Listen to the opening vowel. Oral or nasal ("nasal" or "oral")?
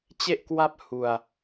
oral